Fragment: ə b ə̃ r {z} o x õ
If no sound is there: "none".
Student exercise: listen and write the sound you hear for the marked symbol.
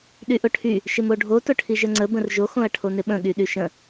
ʒ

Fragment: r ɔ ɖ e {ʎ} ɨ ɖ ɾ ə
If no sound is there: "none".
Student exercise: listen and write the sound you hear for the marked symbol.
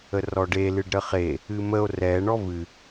l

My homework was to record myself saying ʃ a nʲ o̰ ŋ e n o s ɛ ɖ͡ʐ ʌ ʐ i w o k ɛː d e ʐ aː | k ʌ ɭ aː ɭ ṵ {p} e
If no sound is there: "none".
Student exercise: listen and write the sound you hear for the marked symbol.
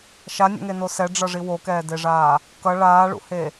h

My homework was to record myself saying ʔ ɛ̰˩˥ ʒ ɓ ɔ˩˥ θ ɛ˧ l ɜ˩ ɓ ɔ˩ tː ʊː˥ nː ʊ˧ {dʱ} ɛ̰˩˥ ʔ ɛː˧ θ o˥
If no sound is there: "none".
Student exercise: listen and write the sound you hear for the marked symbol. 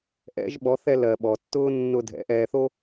dʱ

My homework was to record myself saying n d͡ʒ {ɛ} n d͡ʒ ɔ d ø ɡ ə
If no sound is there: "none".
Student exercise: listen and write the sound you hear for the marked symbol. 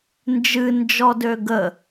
ɨ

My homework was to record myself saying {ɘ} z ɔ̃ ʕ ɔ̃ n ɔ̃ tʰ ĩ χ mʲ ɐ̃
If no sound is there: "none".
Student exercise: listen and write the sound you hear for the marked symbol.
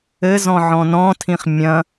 ɘ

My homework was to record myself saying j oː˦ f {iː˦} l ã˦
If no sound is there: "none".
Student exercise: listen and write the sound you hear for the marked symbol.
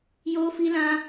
i˦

